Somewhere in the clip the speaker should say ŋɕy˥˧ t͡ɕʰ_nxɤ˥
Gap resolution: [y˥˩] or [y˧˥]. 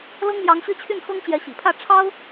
y˥˩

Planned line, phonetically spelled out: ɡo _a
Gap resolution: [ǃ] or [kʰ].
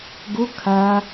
kʰ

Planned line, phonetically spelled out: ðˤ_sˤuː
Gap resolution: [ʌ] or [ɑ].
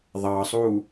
ɑ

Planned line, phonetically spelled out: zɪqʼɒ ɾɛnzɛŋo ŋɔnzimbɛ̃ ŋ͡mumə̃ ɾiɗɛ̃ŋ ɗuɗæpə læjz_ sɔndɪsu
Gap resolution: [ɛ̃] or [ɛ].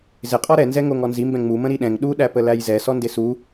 ɛ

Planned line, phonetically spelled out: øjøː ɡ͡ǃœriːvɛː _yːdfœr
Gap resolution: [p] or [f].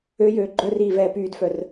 p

